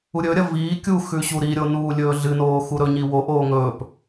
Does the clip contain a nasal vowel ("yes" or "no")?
no